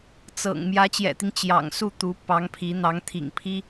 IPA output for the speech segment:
t͡s ɤ̰˨˩ ŋ m j ä˧˥ t͡ɕ j ɛ̰˨˩ t̪ i˦ ŋ t͡ɕ j ɑ̰˨˩ ŋ s u˥˩ t̪ u˧˥ p ɑ˧˥ ŋ pʰ i˧˥ n̪ ɑ˧˥ ŋ t̪ʰ ḭ˨˩ ŋ pʰ i˥

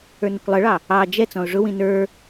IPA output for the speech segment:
ə˞ n ə kʷ lˠ ə ɭ ɑ | ɑ d͡ʒ ɛ t͡s ɔ̃ ʊ̯ ʐ ʊ w ĩ n ə˞

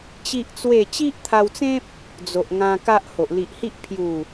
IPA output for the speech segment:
t͡ɕ i˦ ʔ t͡s w e˥˧ t͡ɕ i˦ ʔ t̪ʰ a˧ w t͡s ẽ˦ p̚ | d͡z o˨ ʔ ŋ ã˧ k a˦ ʔ h o˨ ʔ l i˨ ʔ h i˦ ʔ pʰ j u˨˩

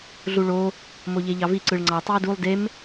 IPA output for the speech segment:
ɮ u ɭ o | m o ʎ e ʎ ɑ v i ǀ ɯ ɭ ŋ͡ǀ ɑ tˤ i ə̯ d u lˠ d e m

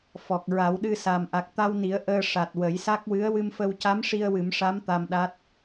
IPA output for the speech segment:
f ɔ˨˩ k̚ ɹ a˨˩˦ w ɗ ɨ˧ s a˨˩ m ʔ a˨˩ k̚ t̪ a˧ w n i˨˩˦ ə̯ ʔ əː˧ ʂ a˨˩ t̚ w ə˨˩˦ j s a˦˥ k̚ w ɨ˧˥ ə̯ w ɨ˧ m f ə˧ w c a˧˥ m ʂ i˧ ə̯ w ɨ˨˩˦ m ʂ a˧˥ m t̪ a˧ m ɗ a˦˥ t̚

